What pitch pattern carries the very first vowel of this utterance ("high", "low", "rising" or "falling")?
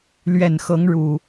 low